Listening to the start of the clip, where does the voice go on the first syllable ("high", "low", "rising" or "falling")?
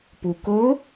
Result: low